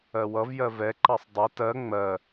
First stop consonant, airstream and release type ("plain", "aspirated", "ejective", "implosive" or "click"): click